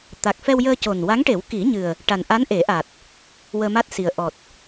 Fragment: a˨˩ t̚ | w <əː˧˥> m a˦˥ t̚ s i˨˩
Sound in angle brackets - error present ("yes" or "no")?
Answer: yes